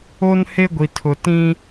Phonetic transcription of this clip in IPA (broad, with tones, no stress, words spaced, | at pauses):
o˦n he˦ɡʷi˨tʰʊ˨ tĩ˦